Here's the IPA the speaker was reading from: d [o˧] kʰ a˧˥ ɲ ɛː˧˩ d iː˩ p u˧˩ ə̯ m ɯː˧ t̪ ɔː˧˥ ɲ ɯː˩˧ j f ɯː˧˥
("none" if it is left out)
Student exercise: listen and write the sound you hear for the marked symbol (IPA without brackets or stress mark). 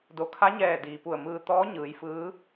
o˩˧